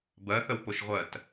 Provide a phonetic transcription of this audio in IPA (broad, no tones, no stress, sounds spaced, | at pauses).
b ɜ θ ə w p o ʃ ʁʷ ɜ t